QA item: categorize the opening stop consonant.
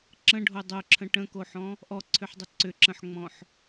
click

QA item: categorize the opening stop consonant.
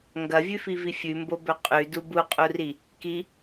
plain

